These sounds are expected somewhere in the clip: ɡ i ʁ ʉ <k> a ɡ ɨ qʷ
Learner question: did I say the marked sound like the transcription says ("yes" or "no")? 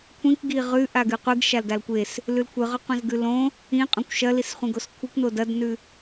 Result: no